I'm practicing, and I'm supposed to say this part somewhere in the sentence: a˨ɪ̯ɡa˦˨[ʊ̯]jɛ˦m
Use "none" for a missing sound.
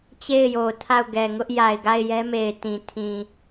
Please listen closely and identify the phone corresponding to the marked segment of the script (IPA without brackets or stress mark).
ɪ̯